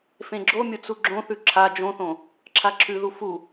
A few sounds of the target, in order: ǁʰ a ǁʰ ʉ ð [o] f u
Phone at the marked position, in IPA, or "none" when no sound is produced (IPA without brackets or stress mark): u